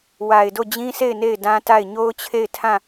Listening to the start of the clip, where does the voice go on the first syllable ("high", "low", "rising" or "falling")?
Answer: low